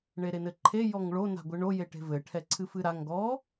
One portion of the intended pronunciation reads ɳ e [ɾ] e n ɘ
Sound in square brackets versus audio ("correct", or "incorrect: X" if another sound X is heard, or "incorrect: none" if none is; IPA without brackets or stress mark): correct